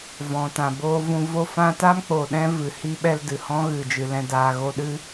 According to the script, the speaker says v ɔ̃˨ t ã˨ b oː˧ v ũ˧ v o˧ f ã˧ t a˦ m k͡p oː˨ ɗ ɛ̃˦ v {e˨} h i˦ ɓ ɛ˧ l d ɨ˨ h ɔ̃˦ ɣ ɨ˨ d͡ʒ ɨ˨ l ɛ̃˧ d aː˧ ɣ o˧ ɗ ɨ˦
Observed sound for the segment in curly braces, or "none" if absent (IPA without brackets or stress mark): ɨ˨